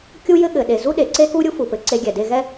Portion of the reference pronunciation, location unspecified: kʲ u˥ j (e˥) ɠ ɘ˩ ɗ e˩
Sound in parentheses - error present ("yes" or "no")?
yes